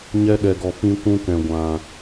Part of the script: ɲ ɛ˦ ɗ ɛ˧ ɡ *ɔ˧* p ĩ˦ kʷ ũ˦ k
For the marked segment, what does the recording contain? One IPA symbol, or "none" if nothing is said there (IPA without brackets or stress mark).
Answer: ɔ˧